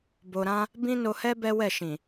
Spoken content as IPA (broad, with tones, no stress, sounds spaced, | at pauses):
b o˧ ɾ ã˦ | b ĩ˦ n o˧ h ɛ˦ b ɛ˦ w ɛ˦˨ ʃ ĩ˨